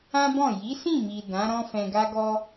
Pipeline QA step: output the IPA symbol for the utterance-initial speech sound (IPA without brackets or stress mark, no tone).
ã